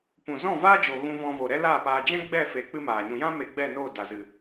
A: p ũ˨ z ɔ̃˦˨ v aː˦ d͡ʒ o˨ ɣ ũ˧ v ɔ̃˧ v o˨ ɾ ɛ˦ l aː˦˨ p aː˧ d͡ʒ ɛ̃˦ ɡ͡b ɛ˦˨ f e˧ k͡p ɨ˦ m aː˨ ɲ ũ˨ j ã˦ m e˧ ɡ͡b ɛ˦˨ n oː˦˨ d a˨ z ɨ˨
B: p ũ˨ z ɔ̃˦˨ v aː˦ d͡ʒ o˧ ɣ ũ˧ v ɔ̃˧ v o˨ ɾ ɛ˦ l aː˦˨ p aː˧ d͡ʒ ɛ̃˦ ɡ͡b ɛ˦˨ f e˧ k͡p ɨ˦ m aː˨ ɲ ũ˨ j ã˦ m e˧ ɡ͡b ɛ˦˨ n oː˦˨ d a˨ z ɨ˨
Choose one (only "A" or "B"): A